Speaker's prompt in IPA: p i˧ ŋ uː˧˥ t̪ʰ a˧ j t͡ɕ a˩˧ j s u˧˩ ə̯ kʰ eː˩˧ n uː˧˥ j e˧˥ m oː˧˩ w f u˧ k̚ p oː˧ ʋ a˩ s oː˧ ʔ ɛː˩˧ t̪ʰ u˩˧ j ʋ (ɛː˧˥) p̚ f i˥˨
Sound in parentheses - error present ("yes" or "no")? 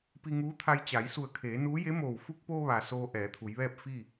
yes